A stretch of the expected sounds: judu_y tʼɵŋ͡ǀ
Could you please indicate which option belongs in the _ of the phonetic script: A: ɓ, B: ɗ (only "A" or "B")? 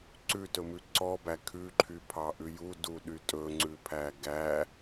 B